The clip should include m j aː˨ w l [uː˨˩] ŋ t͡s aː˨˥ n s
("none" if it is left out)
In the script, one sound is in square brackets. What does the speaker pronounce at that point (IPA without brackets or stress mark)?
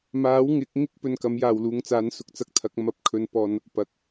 uː˨˧